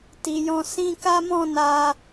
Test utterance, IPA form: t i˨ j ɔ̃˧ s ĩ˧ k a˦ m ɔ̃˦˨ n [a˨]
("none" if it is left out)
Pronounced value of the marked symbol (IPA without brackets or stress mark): a˧